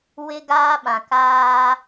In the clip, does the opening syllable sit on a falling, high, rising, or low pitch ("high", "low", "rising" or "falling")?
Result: high